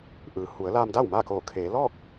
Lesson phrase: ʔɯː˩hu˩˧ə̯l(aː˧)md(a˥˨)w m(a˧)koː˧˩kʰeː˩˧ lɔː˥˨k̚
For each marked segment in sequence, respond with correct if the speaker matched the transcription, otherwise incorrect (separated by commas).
correct, correct, incorrect